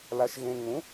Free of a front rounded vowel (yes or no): yes